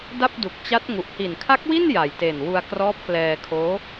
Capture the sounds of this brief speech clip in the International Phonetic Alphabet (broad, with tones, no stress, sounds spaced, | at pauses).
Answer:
d a˥˩ p̚ d u˨˩ k̚ t͡ɕ a˦˥ t̚ ŋ u˨˩ ʔ h i˨˩ n kʰ a˦˥ k̚ w i˥˩ n j a˨˩ j t e˨˩ n w u˧ a̯ k r ɔː˦˥ p̚ k l ɛː˧ kʰ oː˦˥